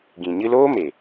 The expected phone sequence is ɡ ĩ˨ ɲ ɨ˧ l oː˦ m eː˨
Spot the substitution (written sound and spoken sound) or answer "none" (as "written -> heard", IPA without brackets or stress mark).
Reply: none